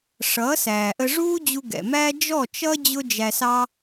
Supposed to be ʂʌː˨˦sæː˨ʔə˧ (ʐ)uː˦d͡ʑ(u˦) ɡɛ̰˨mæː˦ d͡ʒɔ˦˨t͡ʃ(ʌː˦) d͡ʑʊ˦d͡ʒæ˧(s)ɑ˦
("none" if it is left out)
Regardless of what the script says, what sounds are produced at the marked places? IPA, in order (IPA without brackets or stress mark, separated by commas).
ʐ, u˧, ʌː˦, s